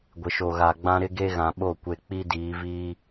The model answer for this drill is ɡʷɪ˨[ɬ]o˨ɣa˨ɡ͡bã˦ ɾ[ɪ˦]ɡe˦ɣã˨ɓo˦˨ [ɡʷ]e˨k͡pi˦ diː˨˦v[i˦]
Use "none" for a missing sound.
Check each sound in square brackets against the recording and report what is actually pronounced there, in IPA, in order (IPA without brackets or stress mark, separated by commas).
ʃ, ɪ˦, kʷ, iː˦